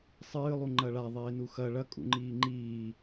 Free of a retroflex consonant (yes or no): no